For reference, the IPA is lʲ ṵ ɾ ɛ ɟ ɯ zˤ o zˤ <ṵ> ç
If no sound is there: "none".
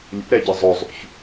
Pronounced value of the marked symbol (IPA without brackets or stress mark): ṵ